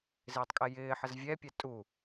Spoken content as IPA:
z ɪː tˤ kʼ ɛ j ɪː ħ ə z vʲ ɛ pʲ ɛ tʼ u

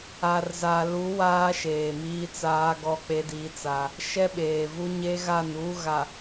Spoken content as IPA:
a˨ r z a˨ l u˨˦ w aː˦ ʃ eː˨ m iː˦ t͡s aː˦ ɡ ɔ˦ k͡p e˦ d iː˦ t͡s a˦ | ʃ ɛ˦ ɓ eː˨ v u˦ ɲ e˦ ɣ a˦˨ n uː˦ ɣ a˨

